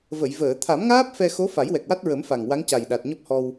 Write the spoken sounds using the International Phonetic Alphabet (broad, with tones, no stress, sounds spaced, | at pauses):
v ə˨˩˨ j v əː˨˩˨ t̪ʰ a˨˩˦ m ŋ aː˦˥ p̚ f ɛ˧ x o˧˥ f a˨˩˦ j w ɛ˨˩ k̚ w a˦˥ t̚ ɹ ə˨˩˦ m f a˨˩ ŋ w a˧˥ ŋ c a˨˩ j ɗ a˨˩ t̚ ɲ ɔ˦˥ p̚ h ɔ˧ w